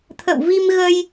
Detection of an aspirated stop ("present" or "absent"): present